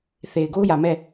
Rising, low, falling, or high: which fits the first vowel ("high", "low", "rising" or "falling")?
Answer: low